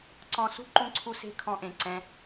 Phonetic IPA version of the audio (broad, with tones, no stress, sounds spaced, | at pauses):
ǀ ɔ̃˧ s ṳ˦ ǃ ũ˧ ǀʰ u˧ s e̤˧ kʰ ɔ̃˧ ʔ ẽ˨ ǀ ɛ̃˧